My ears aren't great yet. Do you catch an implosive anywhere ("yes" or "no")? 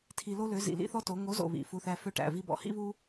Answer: no